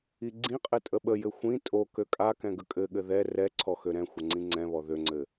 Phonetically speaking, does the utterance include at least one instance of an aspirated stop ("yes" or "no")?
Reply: yes